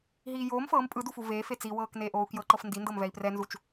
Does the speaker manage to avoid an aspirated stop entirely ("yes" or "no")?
yes